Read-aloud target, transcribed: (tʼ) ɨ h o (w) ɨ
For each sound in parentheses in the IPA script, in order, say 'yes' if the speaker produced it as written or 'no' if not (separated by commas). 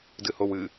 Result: no, yes